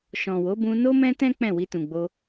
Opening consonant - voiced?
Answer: no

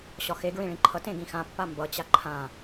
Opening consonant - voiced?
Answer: no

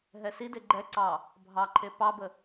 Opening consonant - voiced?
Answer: yes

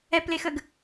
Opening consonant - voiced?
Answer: no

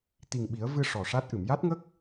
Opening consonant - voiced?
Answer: no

